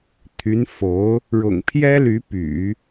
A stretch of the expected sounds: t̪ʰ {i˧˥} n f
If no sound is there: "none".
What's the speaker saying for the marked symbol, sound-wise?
y˧˥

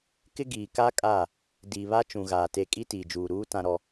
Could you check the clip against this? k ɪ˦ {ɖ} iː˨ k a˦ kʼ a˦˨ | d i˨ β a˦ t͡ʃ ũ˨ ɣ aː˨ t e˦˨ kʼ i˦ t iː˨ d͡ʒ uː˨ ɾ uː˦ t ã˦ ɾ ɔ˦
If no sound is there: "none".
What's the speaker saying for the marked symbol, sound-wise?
ɡ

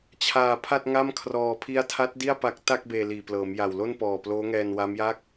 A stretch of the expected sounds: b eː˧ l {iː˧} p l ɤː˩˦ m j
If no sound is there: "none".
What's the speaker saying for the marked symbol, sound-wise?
iː˨˩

